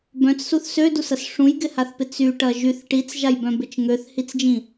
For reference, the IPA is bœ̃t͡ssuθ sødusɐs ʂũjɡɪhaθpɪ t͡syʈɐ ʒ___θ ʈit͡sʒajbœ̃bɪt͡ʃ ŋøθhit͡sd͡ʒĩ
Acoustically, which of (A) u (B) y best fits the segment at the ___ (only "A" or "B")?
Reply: B